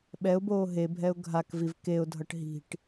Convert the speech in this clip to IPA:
ɓ ɛ ʊ̯ b oː ɦ e bʱ ɛ ʊ̯ ɡʱ a k v i v k e ʊ̯ dʱ ʌ ʈ ɦ i̤ ʈ

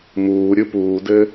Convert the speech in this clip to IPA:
m uː ɾʲ ɯ p uː d ɘ

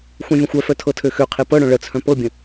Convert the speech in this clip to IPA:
xʷ œ̃ vʲ ə̃ xʷ œ f œ tʰ ɤ tʰ ø x ø qʰ e p ɤ ɽ œ̃ ɭ ə t͡sʰ œ̃ p ɤ bʲ ə̃

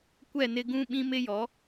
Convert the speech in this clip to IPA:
kʷ ɛ˦˨ n ɪ˦ ɡ ũ˦ ɓ ĩ˦ m ɪ˦ j ɔ˨˦

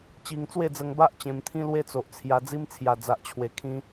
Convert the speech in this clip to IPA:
t͡ɕ i˧ ŋ t͡s w e˥˧ d͡z ə˧ ŋ b a˦ ʔ t͡ɕ ẽ˧ m t̪ʰ ĩ˦ l w e˦ t͡s o˨ ʔ t͡sʰ j a˧ d͡z i˦ m t͡sʰ j a˨˩ d͡z a˨ ʔ t͡ɕʰ w e˨˩ kʰ ĩ˧

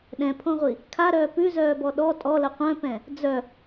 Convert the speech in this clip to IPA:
ɗ ɛ̃ pʰ õ ʁʷ i | kʰ a ɾ œː p ʉ z œː b ɔ ɗ ɔ tʼ ɔ l ə qʷ œ̃ p ɛ̃ | d͡z œ

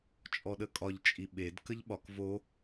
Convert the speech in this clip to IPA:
t͡ʃʼ ɔ ɗ ə kʼ ɒ ʎ t͡ʃʼ i ɓ e d k ə ʎ ɓ ɒ k v o

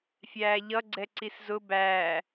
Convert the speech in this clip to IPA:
fʲ æː ʎ ʌ ɡ͡ǀ ɛ ǀ i s z ʊ b æː

